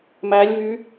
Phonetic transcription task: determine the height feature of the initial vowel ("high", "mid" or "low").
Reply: low